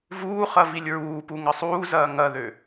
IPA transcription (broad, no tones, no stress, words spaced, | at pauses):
vuːχɐ vilʲɹuːpu ŋɐsˤuːzɐː ŋɐðø